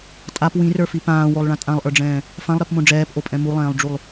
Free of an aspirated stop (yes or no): yes